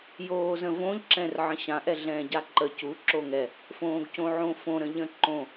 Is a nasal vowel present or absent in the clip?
present